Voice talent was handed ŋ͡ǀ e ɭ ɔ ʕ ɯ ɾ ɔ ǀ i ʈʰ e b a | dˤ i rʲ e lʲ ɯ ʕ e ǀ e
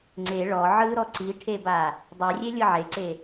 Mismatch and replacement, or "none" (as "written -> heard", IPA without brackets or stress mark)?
none